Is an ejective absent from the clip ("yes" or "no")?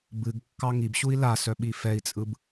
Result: no